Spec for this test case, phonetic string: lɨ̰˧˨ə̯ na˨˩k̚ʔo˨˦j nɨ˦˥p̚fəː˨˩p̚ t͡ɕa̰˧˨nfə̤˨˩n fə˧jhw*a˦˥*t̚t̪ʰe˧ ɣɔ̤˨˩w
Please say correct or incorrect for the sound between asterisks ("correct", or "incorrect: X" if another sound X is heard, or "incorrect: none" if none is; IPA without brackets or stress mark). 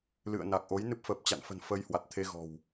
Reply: incorrect: a˨˩